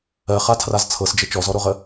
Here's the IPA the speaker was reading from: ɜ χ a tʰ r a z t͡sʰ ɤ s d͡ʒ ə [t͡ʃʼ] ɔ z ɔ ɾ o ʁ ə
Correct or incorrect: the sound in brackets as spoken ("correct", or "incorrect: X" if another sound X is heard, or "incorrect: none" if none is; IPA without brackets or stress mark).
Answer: incorrect: t͡ʃ